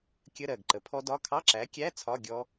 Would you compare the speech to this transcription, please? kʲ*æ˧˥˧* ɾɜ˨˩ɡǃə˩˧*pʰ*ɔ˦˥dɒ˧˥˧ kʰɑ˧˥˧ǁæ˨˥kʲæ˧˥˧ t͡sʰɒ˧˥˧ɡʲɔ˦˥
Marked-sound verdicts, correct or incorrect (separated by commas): incorrect, correct